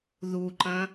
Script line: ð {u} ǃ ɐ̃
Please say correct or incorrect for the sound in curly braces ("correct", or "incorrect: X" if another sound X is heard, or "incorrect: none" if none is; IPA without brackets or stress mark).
correct